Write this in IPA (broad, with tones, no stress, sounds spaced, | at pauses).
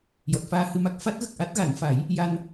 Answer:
j ɔ˨˩ t̚ f aː˧ h ɨ˧ m a˦˥ k̚ f a˦˥ t̚ ɣ ə˨˩ k̚ ʔ a˦˥ t̚ ɣ a˨˩˦ n f a˨˩˦ j | j a˧ n